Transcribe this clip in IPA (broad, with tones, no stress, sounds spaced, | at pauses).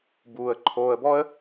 b uː˨ ə̯ ǃʰ oː˧ ə̯ b ɔ˦ ə̯